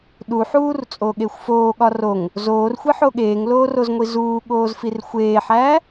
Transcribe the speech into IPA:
ɗ u ħ uː r t͡sʼ oː ɠ e xʷ f oː ɠ ɒ r o ŋ | z oː r xʷ i ħ o ɠ eː ŋ l oː r o z ŋʷ i z uː ɠ oː z f i r xʷ eː ħ æː

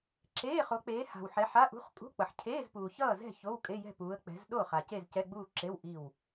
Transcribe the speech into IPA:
ǁ eː˧˥˧ χ o˨˦ k͡p eː˨˦ h a̤˨ w ħ ɛ˨˦ ħ a˧˥˧ ʔ ṳ˧˥˧ χ kʼ ṳ˧˥˧ k͡p ʌ˨ ħ cʰ eː˧˥˧ z p uː˨ ç ʌː˥˨ z ɛ̤˥˨ ç o˧˥˧ w kʼ e˧˥˧ j ɛ̤˥˨ p uː˨˦ ə̯ k͡p ɛ̤˨˦ z ɗ o˥˨ χ a˨ c e˥˨ z c ɛ˧˥˧ ɡ͡b uː˥˨ ǁ e˧˥˧ w ʔ i˥˨ w

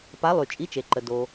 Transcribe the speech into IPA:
p a˧˥ lˠ y˨ t͡ʃʼ i˧˥ t͡ʃ e˨ ǃ ə˨ d o˨

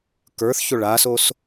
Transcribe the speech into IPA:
k ə˞ θ ç o ɭ a s o s

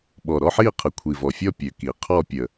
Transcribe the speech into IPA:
ɓ ɔ˨˩ ɾ ɔ˥˧ ħ i˥˧ qʰ ə˨˩ kʷʰ i˨˩ v ɔ˨˩ fʲ ɔ˥˧ pʲ ø˨˩ k i˨˩ qʰ ɔ˥˧ pʲ ə˨˩

